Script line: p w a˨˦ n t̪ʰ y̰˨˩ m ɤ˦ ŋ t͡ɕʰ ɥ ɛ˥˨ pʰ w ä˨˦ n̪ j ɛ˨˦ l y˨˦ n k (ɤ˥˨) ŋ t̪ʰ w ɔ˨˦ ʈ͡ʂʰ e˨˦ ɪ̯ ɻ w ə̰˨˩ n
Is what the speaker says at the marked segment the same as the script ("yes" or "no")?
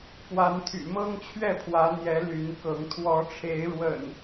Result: no